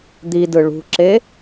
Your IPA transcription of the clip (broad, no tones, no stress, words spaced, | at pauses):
d̪idɯ ɭṳǁe